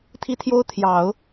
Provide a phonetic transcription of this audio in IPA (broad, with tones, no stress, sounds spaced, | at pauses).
t̪ʰ i˥ t̪ʰ j o˥ ʊ̯ t̪ʰ j ɑ˨˩˦ ʊ̯